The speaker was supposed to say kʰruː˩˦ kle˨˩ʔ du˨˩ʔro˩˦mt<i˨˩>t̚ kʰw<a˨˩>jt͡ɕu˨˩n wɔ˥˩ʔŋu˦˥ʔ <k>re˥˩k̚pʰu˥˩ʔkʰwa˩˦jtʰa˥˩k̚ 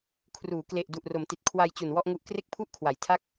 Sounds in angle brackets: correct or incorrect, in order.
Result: correct, incorrect: a˧, correct

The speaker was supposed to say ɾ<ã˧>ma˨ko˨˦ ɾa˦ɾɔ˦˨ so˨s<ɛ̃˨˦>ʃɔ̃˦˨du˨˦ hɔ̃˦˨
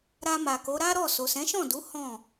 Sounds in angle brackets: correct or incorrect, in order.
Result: incorrect: a˧, correct

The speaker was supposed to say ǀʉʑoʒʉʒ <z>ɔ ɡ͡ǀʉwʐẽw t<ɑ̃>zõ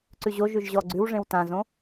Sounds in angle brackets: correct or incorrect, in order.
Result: incorrect: ʑ, incorrect: ã

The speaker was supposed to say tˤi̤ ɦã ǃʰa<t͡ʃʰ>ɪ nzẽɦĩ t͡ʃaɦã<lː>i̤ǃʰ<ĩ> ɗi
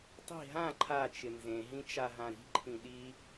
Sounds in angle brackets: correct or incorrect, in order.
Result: incorrect: t͡ʃ, incorrect: ɾ, correct

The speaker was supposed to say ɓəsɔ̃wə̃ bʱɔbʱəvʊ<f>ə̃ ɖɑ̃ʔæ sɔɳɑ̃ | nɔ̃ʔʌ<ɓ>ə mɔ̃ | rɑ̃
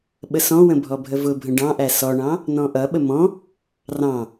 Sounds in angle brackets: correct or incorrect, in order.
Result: incorrect: bʱ, correct

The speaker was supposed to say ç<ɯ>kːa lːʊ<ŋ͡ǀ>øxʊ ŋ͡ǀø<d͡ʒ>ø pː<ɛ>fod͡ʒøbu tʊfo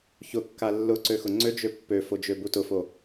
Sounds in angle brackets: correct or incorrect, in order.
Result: incorrect: ʊ, incorrect: ǀ, correct, incorrect: ø

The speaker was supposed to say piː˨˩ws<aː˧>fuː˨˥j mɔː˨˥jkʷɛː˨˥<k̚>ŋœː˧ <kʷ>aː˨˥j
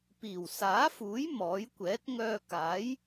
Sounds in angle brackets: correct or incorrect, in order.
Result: incorrect: aː˨˥, incorrect: t̚, incorrect: k

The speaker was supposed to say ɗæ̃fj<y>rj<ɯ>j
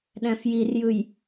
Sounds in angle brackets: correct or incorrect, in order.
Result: incorrect: i, correct

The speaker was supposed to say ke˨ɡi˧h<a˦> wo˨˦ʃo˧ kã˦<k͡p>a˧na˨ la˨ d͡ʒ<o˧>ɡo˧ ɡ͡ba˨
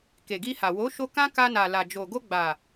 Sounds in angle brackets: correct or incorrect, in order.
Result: incorrect: a˨, incorrect: k, incorrect: o˨

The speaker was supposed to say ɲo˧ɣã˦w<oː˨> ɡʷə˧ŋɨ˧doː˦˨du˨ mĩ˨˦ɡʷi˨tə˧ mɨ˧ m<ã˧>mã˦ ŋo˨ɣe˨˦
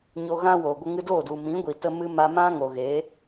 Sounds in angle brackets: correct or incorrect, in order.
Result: incorrect: o˨, incorrect: a˧

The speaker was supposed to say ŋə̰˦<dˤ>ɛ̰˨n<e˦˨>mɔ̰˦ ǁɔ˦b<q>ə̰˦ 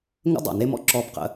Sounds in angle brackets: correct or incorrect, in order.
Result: correct, incorrect: e˦, correct

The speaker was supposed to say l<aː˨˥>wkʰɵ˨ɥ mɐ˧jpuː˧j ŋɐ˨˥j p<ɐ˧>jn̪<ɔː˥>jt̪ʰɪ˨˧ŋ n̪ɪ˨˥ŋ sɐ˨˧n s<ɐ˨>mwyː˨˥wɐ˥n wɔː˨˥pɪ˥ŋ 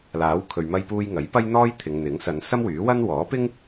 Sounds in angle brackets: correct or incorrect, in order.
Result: correct, incorrect: ɐ˥, correct, incorrect: ɐ˥

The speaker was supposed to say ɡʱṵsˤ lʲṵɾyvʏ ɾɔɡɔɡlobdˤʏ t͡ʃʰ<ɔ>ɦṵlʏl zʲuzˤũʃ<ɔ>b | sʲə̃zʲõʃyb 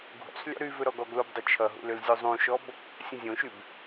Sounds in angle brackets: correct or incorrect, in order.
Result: incorrect: ʌ, correct

